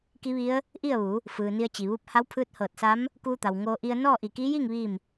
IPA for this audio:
k i˧˥ ʋ i˧˥ ə̯ | ʔ i˥˨ ə̯ ʋ u˩˧ | f ɯː˩ n i˧ ə̯ t͡ɕ i˩ ʋ u˧˥ p̚ h a˧˥ w pʰ ɯː˧˥ t̚ h ɤː˧˩ t̚ s a˧˥ m | k uː˧ t̪ a˩ w ŋ oː˧ ʔ i˧ ə̯ n ɔː˥˨ ʔ i˧˩ k iː˧˥ j iː˥˨ ŋ ʋ i˥˨ m

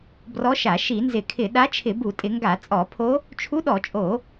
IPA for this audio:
b r ɔ˧˥ ʃ a˧˩˧ ʃ i˧˩˧ n z ɪ˧˩˧ kʰ ɪ˧˩˧ ɗ a˧˥ t͡ʃʰ ɪ˧˩˧ b u˧˩˧ tʼ ɪ˧˩˧ ŋ ɡ a˧˩˧ t͡sʼ ɔ˧˩˧ pʰ o˧˥ | t͡ʃʰ u˧˥ ɗ ɔ˧˩˧ t͡ʃʼ o˧˩˧

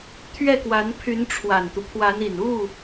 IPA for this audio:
t̪ʰ ɥ ɛ˥˩ k w a˧˥ n pʰ y˧˥ n ʈ͡ʂʰ w a˨˩ n t̪ u˦ pʰ w a˧˥ n i˨˩ n u˥˩

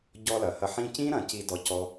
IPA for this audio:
ɟ ɔ˦ l ɐ˨ h ɐ˦ ħ ĩ˦ c ĩ˥ ɾ ɐ̃˨ c i˥ d ɔ˦ c ɔ˥

